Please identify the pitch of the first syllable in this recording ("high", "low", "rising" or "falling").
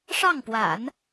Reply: falling